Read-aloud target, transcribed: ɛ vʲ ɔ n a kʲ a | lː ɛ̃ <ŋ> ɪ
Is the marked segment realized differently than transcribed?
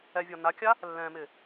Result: yes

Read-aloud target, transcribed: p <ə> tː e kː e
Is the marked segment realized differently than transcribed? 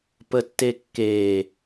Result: no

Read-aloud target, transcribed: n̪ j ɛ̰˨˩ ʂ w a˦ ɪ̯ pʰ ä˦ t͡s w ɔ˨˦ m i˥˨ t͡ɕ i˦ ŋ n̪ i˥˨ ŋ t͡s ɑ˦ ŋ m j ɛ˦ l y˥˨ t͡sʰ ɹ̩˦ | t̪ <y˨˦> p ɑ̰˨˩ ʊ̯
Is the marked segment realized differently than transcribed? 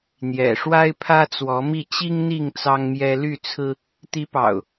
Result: yes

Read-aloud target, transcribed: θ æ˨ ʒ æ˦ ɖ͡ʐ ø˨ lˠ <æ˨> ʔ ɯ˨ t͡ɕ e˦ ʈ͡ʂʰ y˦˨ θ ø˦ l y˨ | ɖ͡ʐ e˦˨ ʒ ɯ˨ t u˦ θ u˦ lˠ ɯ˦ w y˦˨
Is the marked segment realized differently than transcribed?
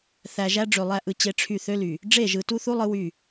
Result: yes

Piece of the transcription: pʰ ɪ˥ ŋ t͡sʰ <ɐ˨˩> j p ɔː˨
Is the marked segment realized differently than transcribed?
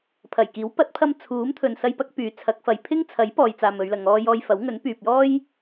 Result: yes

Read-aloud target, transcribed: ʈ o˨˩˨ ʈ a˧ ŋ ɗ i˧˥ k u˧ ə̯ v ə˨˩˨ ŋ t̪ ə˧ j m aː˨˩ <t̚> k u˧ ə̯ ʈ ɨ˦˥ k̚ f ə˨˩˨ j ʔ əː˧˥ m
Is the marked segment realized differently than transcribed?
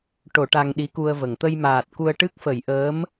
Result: no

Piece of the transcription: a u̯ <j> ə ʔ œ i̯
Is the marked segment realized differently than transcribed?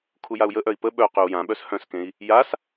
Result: no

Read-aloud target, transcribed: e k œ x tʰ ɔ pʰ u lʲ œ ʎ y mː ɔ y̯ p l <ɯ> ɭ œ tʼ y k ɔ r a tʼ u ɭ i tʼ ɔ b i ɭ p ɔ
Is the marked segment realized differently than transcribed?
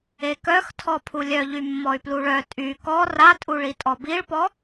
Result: yes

